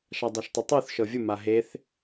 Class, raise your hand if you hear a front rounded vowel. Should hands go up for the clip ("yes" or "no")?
no